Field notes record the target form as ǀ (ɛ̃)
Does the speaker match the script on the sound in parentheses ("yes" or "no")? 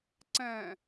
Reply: yes